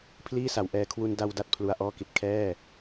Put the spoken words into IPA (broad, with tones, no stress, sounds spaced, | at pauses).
pʰ l iː˥˩ s a˩˦ w ʔ ɛː˧ kʰ w u˧ n d a˧ w d a˥˩ t̚ pʰ l u˧ a̯ ʔ ɔː˥˩ k i˨˩ t̚ kʰ ɛː˥˩